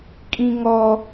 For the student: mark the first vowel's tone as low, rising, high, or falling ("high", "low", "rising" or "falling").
high